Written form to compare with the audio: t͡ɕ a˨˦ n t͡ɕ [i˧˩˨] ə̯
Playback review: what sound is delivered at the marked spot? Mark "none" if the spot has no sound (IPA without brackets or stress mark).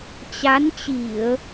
i˧˩˨